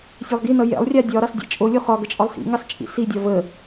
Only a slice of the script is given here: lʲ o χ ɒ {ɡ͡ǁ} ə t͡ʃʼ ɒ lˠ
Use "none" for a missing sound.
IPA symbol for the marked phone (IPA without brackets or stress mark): ɡ